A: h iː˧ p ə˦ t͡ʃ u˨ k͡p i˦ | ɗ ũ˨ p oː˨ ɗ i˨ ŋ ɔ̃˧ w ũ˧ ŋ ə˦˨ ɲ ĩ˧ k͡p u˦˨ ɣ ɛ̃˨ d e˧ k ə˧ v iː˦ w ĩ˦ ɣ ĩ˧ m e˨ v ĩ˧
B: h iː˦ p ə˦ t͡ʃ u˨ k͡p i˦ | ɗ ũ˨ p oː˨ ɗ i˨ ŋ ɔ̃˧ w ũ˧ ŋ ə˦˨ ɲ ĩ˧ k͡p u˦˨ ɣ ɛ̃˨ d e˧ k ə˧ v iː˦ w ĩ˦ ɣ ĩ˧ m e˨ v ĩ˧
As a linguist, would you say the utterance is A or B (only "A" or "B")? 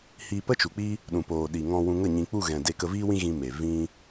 A